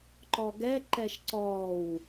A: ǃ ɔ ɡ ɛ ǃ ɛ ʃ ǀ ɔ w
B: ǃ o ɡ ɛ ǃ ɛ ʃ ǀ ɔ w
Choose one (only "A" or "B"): A